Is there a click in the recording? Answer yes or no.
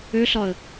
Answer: no